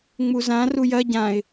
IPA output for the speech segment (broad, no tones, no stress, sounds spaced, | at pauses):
ŋ͡m u z ã r u j ɐ ɟ ã ɪ̯